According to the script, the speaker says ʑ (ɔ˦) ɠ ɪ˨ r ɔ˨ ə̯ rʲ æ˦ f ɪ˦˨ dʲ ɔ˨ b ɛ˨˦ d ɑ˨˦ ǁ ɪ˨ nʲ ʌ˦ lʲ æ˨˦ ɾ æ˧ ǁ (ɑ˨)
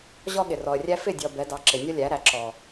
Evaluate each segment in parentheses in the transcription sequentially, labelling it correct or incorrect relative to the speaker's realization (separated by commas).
correct, incorrect